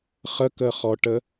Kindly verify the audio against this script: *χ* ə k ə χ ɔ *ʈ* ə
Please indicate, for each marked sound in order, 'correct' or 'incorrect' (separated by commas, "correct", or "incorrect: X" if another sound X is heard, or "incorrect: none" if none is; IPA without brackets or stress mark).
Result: correct, correct